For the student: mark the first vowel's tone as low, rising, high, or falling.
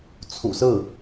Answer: low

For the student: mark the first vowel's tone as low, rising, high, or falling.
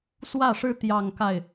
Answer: falling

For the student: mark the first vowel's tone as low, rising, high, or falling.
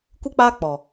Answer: high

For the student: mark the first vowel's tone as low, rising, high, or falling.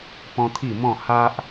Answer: high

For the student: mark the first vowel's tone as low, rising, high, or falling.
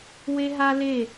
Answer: high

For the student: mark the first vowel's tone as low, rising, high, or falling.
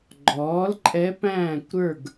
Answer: rising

